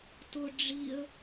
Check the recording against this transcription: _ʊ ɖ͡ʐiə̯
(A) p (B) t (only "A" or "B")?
B